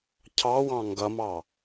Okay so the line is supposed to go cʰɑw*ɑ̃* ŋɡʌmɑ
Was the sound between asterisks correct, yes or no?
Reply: yes